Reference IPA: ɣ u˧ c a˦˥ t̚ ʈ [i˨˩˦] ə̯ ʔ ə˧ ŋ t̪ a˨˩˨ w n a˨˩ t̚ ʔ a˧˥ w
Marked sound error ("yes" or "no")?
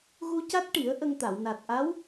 no